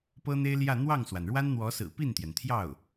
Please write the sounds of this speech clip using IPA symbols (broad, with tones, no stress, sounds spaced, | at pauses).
p ɤ˥ n̪ e˥ ɪ̯ l j ä˥˧ n̪ w ɑ˥˩ ŋ s w a˩ n ɻ w a˥ n n̪ w ɔ˧˥ s ɹ̩˨˩ p i˥˩ n t̪ j ɛ˩ n t̪ʰ j ɑ˥˩ ʊ̯